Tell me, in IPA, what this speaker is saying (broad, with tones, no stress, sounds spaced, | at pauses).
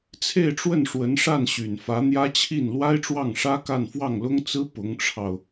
t͡sʰ e˥˧ ɪ̯ ʈ͡ʂ w ə˥˩ n ʂ w ə˧˥ n ʂ a˥˩ n ɕ y˨˩ n f ä˧˥ n̪ j ä˥ t͡ɕʰ i˥˩ n l w a˥ ɪ̯ ʈ͡ʂ w ɑ˥˩ ŋ ʂ ä˥ k a˥˧ n f w ɑ˥˩ ŋ l ʊ˥ ŋ t͡s ɹ̩˥ p ʊ˧˥ ŋ ʈ͡ʂʰ ɑ˧ ʊ̯